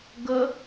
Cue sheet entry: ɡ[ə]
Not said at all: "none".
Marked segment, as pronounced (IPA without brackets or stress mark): ə